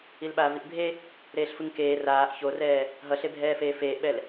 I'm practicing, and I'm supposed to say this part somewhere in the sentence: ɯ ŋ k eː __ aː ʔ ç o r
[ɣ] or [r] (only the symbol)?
r